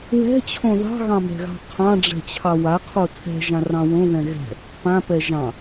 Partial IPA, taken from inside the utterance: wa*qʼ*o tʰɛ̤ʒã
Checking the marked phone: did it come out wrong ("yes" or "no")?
yes